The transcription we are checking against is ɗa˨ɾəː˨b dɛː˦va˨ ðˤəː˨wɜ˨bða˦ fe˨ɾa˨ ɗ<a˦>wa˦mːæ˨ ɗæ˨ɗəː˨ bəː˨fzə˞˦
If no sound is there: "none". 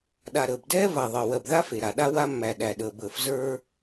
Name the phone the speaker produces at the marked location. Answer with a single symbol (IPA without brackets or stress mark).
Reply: a˦